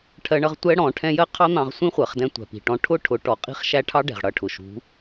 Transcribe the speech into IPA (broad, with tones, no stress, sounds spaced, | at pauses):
ʈʰ ɜ˦ ɳ ʌ˦ ʁ tʷ ɛ˦ ɽ ɔ̃˨˦ ʈʰ ɛ̃˦ j ɜ˦ qʰ ɑ˦ n̪ ɑ̃˧ ʁ sʷ ĩ˦ χʷ ɜ˨ χ d ɛ̃˧ tʷ æ̤˨ p i̤˨ ʈ ɔ̃˧ ʈʰ ʊ˦ ʈʰ ʊ˨˦ ʈ ɔ˨ qʼ i̤˦ χ ʃ æ˦ ʈʰ ɑ˦ ɖ ɛ̤˨ ʁ ɽ ʌ˦˨ ʈʰ ʊ˨ ʃ ṳ˨˦